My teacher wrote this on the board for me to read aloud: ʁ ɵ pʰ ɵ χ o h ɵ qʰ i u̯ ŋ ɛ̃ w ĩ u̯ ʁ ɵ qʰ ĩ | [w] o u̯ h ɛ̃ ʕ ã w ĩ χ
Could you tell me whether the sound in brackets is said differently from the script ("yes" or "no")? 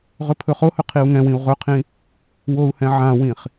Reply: no